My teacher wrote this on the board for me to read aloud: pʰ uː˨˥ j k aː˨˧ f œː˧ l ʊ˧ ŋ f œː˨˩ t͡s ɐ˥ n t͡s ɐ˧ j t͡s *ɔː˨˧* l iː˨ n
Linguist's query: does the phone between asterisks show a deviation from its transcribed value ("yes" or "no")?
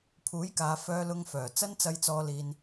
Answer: no